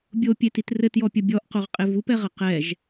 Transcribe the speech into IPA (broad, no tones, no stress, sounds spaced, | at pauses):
bʲ o pʲ e t i t r ɘ t j ɔ pʲ ɐ bʲ ɔ ʔ q o ʁ qʼ e v u p ɛ ʁ ɐ q ɛ ʒ